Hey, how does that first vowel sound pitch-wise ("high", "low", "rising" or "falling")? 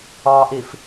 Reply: low